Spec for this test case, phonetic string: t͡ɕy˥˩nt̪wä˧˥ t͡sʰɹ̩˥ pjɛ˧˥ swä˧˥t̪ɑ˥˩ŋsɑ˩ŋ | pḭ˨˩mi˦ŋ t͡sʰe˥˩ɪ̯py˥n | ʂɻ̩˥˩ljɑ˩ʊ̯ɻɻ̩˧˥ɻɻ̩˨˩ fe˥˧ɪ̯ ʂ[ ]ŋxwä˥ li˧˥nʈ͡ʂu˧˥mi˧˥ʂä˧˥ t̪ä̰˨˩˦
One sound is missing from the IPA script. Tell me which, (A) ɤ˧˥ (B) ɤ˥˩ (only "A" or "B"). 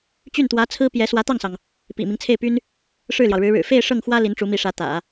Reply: B